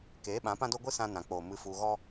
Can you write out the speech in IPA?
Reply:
keː˨˦ɓã˨˦ pã˦do˦ɡʷɨ˦ sã˦nã˨k͡poː˨ mɨ˧fu˧ɣɔ˦

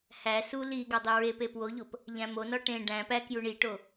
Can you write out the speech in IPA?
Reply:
hæ su li ɡɒdˤiɹepe pwoʎop | ʎæ̃monɒ ʈẽ ɖæ̃ pæ kjuɳiʈo

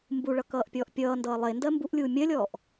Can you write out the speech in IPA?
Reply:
mbuɭʌ kʌːʔpʲɔːʔpʲʌːndʌː lˠe ndɜmbuʔlʲuː mʲɜlʲɔːʔ

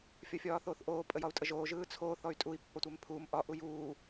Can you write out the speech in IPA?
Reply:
fʲɒfʲɒːθoːθʔoː pʼəjɒu̯tʼəʒoː ʒɯːt͡sʰoː θɔy̯tʼui̯ pːɒtʷɛmpʰuːm ʔɒ ʔujuː

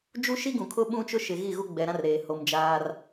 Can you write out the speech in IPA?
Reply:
d͡ʒu˦ʃi˦ɡũ˨kʰʊ˦ ɓũ˦t͡ʃʊ˦ ʃɪ˨ɣi˦˨ɣu˦ ɡ͡bɛ˨ɾã˦r ɾeː˨ ho˨m d͡ʒaː˦r

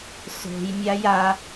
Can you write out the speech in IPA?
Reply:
so̤jmʲaj a

